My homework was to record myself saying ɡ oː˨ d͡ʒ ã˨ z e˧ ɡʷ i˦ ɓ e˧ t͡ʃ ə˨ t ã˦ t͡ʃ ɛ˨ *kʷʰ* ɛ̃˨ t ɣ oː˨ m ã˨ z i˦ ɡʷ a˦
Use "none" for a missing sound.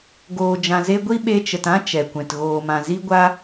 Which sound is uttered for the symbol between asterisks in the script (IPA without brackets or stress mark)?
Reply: kʷ